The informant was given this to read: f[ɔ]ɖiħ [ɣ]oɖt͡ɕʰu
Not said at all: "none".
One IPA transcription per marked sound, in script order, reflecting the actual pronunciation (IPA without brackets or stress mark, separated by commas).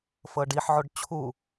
ɤ, ʕ